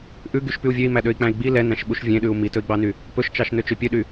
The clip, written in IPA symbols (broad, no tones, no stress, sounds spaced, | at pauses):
ʔ ʉ ɡ y ʃ p y u̯ vʲ ø i̯ m æ ɗ ø i̯ k͡p æ̃ i̯ ɡ͡b i l ɛ n æ̃ ʃ ɓ u ʃ vʲ ẽ ɗ ʉ u̯ m i t ɵ i̯ ɡ͡b ɑ n y | p ɵ ʃ t͡ʃ ɑ ʃ n ø t͡ʃ ø pʲ ø ɗ y